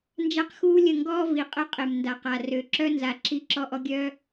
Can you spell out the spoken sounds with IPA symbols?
n d͡ʒ a˦ q x uː˦ lʲ ə˦˨ ŋ ɡ ɔː˦ v i˨ qʼ ə˦ qʼ e˨ m n d a˨ q a˨ r ø˨ ǁ œ˦ n z a˨ ǁ i˦ ǁ ɔ˦ ʔ ɔ˦ ɡʲ œː˦

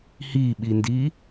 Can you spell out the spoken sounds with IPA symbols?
h i ɓ i n d i

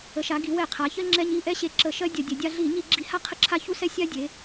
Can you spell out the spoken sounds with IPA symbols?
ə˩˧ ʃ a˩˧ ɡ i˩˧ w ɛ˧˩˧ qʰ a˩˧ ç ɜ˦ ŋ͡ǁ ɛ˦ ɲ i˦ ʔ ɛ˦ ɕ e˧˩˧ ǁ ə˧˩˧ ʃ ɜ˦ dʲ ɐ˧˩˧ dʲ ɐ˩˧ dʲ a˦ ɮ i˧˩˧ ɲ i˧˩˧ ɡ͡ǁ i˧˩˧ h a˦ qʰ ə˦ ǁʰ a˦ ç u˦ s ɛ˦ sʲ a˦ dʲ e˩˧

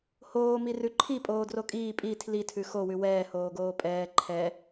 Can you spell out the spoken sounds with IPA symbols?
h oː m i r ʉ ǃʰ i pʼ oː d r o kʼ iː pʼ i tʰ l i tʰ ʉ x o w ʉ w ɛː h oː ɡ oː pʼ ɛː ǃʰ ɛ

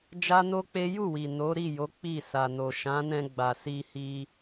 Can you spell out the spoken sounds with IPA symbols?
d͡ʒ a˦ n o˦ k͡p e˦ j u˦˨ w i˨ n o˨˦ ɾ i˦˨ j o˨˦ k͡p i˦˨ s a˨ n o˨ ʃ ã˨˦ n ɛ̃˧ ɡ͡b a˨ s i˧ h i˧

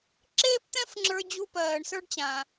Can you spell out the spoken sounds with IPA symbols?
ǁ eː˥ p t̪ ɛ̃˥ f ŋ͡ǁ ə˞˧ d͡ʑ u˧ p ɜː˩ ɳ s ə˞˧ ɖ t͡ɕ ã˩

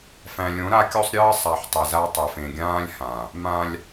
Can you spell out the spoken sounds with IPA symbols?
f æ̃˨ lʲ õ˨˦ ɾ a˦ kʲ o˦ sˤ ɾʲ ɨː˦ sˤ a˨ ħ tˤ e˨ z a˦ tˤ ɛ˨ f ẽ˨ ɡʲ ãː˦ lʲ h ã˨ | m ã˦ lʲ

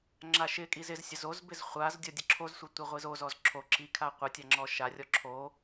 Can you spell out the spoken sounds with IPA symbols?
ŋ͡ǁ a ʃ ɪ kʼ i z ɪ z sʲ ə z o z b ɪ z χʷ a z dʲ ɔ dʲ ə ǁʰ o z sʷ ɪ tʷ e ʁʷ i z o z ɔ z ǁʰ o ǁ i kʰ a qʷ ə tʲ a ŋ͡ǁ ɔ ʃ a rʲ ɔ ǁʰ o

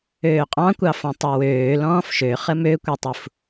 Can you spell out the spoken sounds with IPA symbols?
øː qʼ ɑ̃ kʷ ɑ f ɔ̃ tˤ u w øː l ɔ̃ː f ʃ ø χ ə m ø kʷ ɛ tˤ u f

